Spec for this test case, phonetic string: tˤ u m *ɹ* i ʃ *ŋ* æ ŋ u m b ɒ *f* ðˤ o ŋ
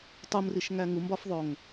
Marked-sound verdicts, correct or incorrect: incorrect: r, correct, correct

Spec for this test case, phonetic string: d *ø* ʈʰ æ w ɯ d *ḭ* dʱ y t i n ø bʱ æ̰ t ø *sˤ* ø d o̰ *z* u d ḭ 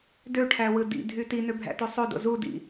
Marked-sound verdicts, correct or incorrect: correct, correct, correct, correct

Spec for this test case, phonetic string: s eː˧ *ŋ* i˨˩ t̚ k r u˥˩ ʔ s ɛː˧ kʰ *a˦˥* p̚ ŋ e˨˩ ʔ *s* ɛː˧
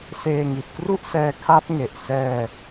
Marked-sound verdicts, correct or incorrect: correct, correct, correct

